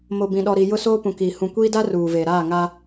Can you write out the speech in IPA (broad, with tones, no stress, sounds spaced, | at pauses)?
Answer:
m o˨ b ĩ˨ ɗ ɔ˨ ɾ i˨ j ʊ˦ s oː˦ p ũ˨ k iː˨ h ũ˨ kʷ iː˦ d a˦ r uː˨ v eː˨ ɾ aː˦˨ ŋ a˦